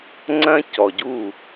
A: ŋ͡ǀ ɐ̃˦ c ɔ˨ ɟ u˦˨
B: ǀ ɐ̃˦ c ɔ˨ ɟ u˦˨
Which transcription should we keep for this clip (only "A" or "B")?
A